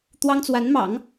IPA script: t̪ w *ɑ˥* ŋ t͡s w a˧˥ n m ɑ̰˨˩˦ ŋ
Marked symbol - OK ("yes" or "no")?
yes